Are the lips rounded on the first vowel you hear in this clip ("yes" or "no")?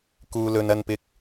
yes